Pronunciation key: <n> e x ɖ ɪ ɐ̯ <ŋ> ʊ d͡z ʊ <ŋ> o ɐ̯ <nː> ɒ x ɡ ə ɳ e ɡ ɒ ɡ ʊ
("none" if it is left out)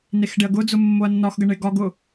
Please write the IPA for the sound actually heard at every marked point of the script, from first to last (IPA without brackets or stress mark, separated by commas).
n, ɡ, mː, nː